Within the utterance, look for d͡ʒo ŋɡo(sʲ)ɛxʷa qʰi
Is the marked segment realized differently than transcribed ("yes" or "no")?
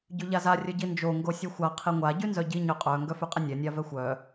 no